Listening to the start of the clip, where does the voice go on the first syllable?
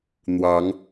rising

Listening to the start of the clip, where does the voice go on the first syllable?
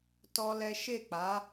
high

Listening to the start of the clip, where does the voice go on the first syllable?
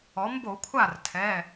rising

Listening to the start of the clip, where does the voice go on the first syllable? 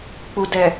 low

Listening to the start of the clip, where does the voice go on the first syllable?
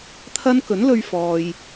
high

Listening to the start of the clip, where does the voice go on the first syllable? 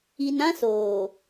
low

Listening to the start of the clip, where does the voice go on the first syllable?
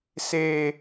low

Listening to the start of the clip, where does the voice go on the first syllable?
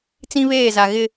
high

